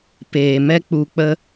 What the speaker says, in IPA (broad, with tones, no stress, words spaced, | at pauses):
peː˧mɛ˦ k͡pu˧k͡pə˦